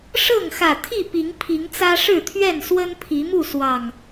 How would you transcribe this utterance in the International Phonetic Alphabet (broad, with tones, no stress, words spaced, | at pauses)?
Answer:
ʂɤ˥˨ŋxä˨˩t̪ʰi˥˨ pi˨˦ŋpʰi˨˦ŋt͡sä˦ ʂɻ̩˥˨t̪ʰɥɛ˥˨n swə˦npʰi˨˦mu˥˨ swɑ˨˩ŋ